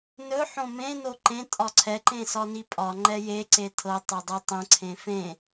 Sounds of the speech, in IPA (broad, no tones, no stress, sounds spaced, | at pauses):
n ɵ ħ õ m ẽ n o ǃ ẽ tʼ ɒ ǀʰ ɛ ǃ ẽ s ɒ n i pʼ ɒ ŋ͡ǃ ɛ j e ǀ e tʰ ɤ tˤ e dˤ ə tˤ ə̃ ǀʰ ẽ f ẽ